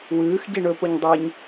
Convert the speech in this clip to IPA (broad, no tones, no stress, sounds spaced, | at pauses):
w ʉː x ɟ i ɳ ɵ p o ɲ dˤ e ɲ